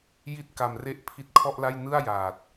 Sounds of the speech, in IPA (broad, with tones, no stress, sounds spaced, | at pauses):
j i˥˩ t̚ k a˧ m r e˦˥ ʔ pʰ i˦˥ t̚ kʰ ɔ˥˩ ʔ l a˥˩ j n ɯ˥˩ a̯ j aː˨˩ t̚